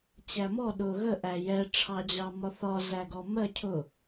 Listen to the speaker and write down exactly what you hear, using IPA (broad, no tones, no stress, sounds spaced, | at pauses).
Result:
t͡ɕ æ m ɔ ɗ ʊ ɣ ə ʔ æ j ɛ ʈ͡ʂʰ ɑ d͡ʑ ɑ m ɒ θ ɒ z æ ɡ ɔ m ɜ cʰ ʊ